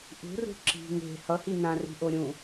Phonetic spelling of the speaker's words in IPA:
ʔ ṳ r ṳ ǁ i̤ ŋ e̤ h ʌ h i n ã r i̤ ʔ o ɾʲ ũ

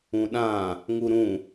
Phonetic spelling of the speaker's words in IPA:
ũ ɗ ã | ŋ u ɾ ũ

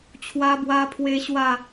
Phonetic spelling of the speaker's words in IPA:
t͡ɕʰ w a˧ b w a˧ pʰ w e˧ ɕ w a˥˧

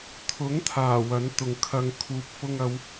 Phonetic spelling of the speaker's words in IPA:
t̪ʰ ʊ˨˥ ŋ t̪ʰ aː˨˩ w ɐ˨˥ n t̪ ʊ˨ ŋ kʰ ɐ˨ ŋ kʰ uː˨ p̚ f ʊ˧ ŋ ɐ˨˧ w

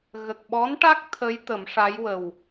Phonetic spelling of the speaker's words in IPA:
ɣ ə˨˩ k̚ ɓ ɔ˧˥ n ʈ a˦˥ k̚ t̪ʰ ə˧˥ j t̪ ə˨˩˦ m ʂ a˧˥ j w ə˨˩ w

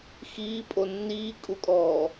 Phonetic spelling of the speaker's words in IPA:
x iː pʼ o nː iː kʼ u kʼ ɔː

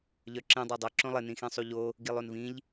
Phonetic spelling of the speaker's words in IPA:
ʎ œ ǁ ĩ dˤ œ dˤ ɘ ǁ õ lˠ ɘ n ĩ x ĩ sˤ u ʎ o | ɡ i lˠ o n v ĩ ʎ

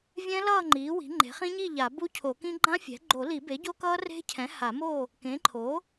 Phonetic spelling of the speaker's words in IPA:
vʲ ɛ̃˦˥ l ʌː˥˨ ŋ͡ǃ iː˩˥ w i̤˩˥ ŋ͡ǃ e̤˩˥ χ ĩ˦˥ ɲ i˥˨ ʎ a˨˩˦ b u˦˥ cʰ o˨˩˦ k ĩ˦˥ ɡ͡ǃ ã˦˥ fʲ ɛ̤˩˥ ɡ͡ǃ o˨˩˦ l i˨˩˦ b e˩˥ ɟ o˦˥ k ʌː˦˥ r e̤˦˥ cʰ ɛ̃˩˥ h a˨˩˦ m o˥˨ | k ẽ˩˥ ǃʰ o˩˥

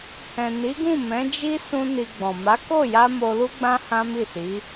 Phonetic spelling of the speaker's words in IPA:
h ɛ̃˨ n i˨˦ ɡ ũ˦˨ m ɛ̃˨˦ d͡ʒ i˦ s ũ˦ n i˧ ɡ͡b ɔ̃˨ m a˨˦ k o˦˨ j a˧ m o˧ l u˦ ɡ͡b ã˦ h ã˦ m i˦˨ s i˨˦

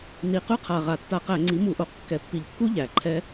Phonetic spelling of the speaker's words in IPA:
n i˨˩ q ʉ˦˥ qʰ a˨˩ ʁ a˨˩ tː a˧˩˧ q æ˧˩˧ ŋ͡ǀ i˩˥ m u˧˩˧ ʔ o˨˩ q kː ɛ˨˩ pː i˨˩ ʎ kː u˦˥ ʎ æ˩˥ ǃʰ ɛ˦˥

